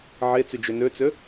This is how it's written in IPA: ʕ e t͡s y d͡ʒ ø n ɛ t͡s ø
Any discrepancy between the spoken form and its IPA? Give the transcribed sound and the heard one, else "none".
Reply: ɛ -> ø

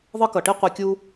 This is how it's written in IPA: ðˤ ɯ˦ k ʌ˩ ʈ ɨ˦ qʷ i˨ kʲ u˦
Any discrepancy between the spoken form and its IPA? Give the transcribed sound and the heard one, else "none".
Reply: ɨ˦ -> i˦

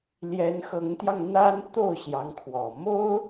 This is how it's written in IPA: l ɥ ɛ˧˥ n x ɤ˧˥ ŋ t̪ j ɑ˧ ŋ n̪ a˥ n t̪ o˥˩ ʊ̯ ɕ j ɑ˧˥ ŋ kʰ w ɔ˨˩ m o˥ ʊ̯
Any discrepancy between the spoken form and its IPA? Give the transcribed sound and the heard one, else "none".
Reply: ɥ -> j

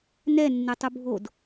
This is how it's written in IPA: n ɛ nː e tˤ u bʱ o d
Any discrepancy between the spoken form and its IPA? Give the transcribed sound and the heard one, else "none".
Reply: none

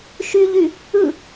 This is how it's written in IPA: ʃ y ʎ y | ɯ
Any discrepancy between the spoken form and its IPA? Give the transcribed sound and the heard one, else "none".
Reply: none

